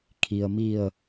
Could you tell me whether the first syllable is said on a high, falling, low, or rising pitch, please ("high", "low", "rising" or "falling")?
low